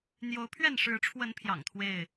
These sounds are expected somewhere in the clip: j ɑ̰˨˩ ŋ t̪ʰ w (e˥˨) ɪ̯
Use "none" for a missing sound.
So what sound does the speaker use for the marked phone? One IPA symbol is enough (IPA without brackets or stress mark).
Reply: e˥˨